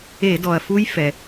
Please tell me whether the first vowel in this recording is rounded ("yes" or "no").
no